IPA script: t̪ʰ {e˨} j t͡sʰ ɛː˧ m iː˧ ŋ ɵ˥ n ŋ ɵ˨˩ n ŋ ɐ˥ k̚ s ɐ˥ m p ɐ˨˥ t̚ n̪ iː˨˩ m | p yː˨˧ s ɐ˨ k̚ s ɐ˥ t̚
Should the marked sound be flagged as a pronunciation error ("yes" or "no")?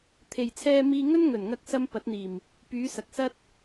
no